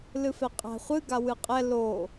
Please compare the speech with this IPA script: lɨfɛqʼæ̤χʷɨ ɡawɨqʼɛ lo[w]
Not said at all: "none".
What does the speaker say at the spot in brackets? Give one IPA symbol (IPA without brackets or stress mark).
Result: none